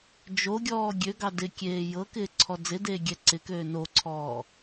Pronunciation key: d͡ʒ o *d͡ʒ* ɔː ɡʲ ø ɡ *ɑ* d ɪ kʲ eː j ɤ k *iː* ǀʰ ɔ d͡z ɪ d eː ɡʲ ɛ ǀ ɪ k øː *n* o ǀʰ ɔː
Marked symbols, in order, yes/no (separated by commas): no, yes, no, yes